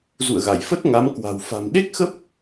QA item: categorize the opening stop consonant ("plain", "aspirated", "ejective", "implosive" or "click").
plain